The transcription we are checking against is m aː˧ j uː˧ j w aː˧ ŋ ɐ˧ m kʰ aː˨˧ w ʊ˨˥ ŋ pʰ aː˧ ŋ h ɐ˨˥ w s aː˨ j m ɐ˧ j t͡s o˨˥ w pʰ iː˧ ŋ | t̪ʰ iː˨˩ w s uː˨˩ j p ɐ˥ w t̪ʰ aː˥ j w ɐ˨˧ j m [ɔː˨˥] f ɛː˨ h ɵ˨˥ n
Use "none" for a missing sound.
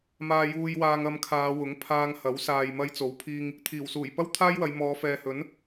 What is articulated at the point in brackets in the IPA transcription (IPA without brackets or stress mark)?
ɔː˨˧